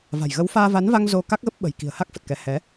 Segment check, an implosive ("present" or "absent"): present